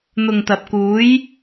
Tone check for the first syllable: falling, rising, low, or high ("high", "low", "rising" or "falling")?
low